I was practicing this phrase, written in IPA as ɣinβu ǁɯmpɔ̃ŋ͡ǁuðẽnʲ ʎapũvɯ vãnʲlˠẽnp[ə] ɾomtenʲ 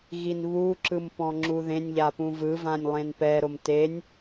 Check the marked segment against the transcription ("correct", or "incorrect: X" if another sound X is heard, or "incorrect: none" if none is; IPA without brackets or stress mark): incorrect: ɛ